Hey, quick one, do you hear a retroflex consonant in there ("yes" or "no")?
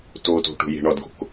yes